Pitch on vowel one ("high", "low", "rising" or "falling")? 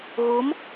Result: rising